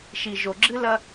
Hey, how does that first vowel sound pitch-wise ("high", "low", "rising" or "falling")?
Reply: low